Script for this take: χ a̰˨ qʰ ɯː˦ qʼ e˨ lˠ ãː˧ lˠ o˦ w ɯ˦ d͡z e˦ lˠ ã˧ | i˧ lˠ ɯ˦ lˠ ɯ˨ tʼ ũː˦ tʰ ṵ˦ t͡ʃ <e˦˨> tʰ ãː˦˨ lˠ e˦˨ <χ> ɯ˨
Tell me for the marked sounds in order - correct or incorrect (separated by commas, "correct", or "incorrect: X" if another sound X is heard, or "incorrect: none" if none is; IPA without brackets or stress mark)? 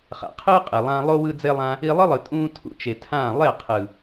incorrect: e˨, incorrect: qʰ